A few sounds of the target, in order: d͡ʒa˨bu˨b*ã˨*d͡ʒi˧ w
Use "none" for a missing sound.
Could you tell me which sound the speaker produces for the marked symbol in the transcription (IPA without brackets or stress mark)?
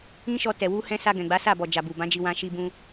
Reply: ã˨˦